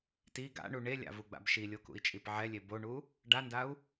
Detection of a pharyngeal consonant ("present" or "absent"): present